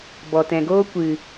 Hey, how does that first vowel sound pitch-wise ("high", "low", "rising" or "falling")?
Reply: low